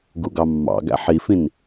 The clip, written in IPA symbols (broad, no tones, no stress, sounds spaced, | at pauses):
ɡ u ɡ ɑ mː ɑ̰ ɡ æ̰ ħ i f ĩ n